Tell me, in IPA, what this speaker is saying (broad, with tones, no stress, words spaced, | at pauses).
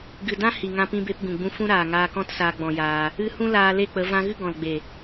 ɡɨ˨dã˦ hi˨ŋã˧pĩ˧be˧p ɡũ˨ɡ͡bũ˧ fũ˦ɾaː˨ ŋaː˧kɔ̃˦tsaː˧ ɡ͡bɔ̃˧jaː˧ | ɨ˧hũ˦ laː˧le˦˨k͡pə˨˦ vã˧ɣɨ˦ ɡɔ̃˨lɡ͡be˨